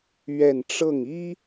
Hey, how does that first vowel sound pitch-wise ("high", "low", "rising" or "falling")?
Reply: falling